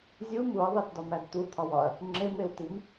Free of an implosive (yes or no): yes